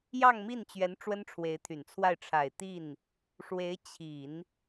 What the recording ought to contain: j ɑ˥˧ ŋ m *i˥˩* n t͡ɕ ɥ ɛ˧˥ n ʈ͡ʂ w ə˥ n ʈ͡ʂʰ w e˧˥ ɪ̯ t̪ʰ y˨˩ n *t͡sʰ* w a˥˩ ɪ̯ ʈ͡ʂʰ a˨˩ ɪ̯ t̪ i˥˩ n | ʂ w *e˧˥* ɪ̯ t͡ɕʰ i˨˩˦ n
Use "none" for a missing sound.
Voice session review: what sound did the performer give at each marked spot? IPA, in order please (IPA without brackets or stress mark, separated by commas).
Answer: i˥˩, t͡sʰ, e˧˥